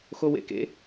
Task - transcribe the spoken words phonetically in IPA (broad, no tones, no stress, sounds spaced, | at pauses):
x o w ḛ k ḛ